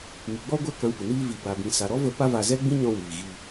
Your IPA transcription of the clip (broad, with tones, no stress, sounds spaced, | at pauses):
ŋ i˨ ɡ͡b ɔ˦ ɡʷ ɛ˦˨ k ã˧ kʷ ɨ˨ n iː˧ v i˨ b a˨ b ĩ˨ s a˨ ɾ ɔ˦ v ə˧ p a˦ v a˧ z ɛ˦ ɡ͡b ĩ˦ ɲ ɔ̃˧ w iː˨ ɣ i˧